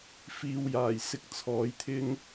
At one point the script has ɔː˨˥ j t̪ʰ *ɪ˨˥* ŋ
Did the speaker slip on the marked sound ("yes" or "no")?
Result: yes